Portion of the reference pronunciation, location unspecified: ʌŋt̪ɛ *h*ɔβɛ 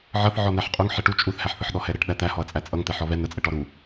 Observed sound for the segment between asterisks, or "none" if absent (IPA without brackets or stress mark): ħ